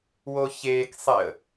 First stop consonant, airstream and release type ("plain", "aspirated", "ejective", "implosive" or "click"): plain